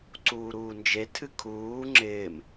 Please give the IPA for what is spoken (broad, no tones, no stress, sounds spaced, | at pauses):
ǀ uː ɾ uː n d͡ʒ e tʰ ɨ kʰ uː ŋ͡ǁ ɪː m